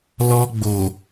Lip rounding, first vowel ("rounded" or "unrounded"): rounded